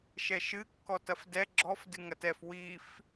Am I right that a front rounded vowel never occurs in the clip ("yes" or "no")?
yes